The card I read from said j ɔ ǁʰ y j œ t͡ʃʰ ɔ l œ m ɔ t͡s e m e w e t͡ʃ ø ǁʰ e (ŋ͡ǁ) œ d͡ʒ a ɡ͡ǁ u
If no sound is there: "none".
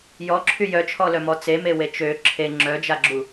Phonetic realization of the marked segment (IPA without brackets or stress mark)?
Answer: ŋ͡ǁ